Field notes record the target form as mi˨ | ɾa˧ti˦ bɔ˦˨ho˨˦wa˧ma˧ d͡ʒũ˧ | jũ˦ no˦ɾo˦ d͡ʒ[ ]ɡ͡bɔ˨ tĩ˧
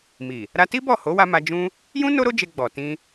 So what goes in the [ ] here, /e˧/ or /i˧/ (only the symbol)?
e˧